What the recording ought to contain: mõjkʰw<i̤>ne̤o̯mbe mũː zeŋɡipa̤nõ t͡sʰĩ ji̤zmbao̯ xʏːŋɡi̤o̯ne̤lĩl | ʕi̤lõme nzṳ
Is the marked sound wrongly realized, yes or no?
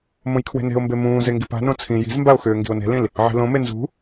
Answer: yes